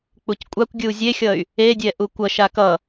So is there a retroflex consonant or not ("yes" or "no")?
no